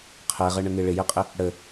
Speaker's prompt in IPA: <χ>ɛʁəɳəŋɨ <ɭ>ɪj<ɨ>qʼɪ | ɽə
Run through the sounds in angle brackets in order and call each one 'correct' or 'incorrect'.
incorrect, correct, incorrect

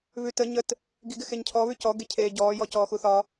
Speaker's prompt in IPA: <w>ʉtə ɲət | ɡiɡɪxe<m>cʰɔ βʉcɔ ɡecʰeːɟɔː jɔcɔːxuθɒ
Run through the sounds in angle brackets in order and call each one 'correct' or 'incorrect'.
incorrect, incorrect

